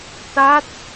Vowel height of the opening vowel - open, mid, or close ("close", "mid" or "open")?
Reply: open